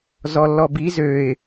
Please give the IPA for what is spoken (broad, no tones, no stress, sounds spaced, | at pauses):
z ɔ lː ɔ b i z ø ɪ̯